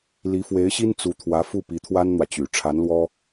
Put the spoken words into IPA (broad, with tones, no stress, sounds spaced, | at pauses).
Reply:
l i˧˥ f w e˧˥ ɪ̯ ɕ i˥ n t͡s u˧˥ t̪ʰ w ä˧˥ f u˥˩ p i˧˥ t̪ʰ w a˥ n n̪ w ä˨ t͡ɕ y˨˩ ʈ͡ʂʰ a˧˥ n l w ɔ˥